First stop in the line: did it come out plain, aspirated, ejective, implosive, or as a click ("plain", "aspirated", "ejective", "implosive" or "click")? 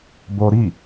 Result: plain